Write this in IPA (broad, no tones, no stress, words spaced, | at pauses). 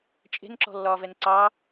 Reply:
t͡ʃʼe̤nǁɔ̤lːɒːvɛn ǀɑ